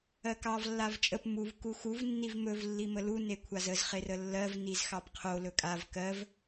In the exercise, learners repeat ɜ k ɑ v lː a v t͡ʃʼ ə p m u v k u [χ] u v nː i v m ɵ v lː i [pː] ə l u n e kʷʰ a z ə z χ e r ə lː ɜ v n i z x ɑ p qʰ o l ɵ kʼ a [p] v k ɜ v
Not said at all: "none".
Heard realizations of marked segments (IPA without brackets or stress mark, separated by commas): x, m, none